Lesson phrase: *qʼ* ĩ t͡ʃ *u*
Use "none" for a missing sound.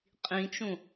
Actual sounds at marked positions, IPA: qʼ, ũ

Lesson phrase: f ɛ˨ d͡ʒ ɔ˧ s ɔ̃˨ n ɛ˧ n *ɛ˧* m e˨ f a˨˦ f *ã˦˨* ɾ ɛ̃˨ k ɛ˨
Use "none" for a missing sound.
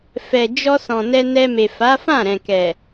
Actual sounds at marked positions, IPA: ɛ˧, ã˦˨

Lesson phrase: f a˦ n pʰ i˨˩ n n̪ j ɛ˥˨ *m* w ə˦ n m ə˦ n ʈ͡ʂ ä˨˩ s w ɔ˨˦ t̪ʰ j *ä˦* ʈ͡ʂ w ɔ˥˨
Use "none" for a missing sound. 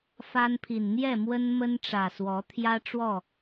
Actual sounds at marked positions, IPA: m, ä˦

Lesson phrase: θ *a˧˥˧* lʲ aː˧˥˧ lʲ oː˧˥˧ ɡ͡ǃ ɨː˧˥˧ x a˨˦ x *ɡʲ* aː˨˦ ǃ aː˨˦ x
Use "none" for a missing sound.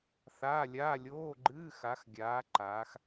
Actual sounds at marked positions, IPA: aː˧˥˧, ɡʲ

